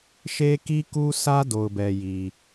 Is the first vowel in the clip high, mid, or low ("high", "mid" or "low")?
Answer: mid